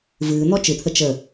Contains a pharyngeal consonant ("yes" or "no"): no